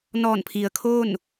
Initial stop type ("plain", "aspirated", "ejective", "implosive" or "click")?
aspirated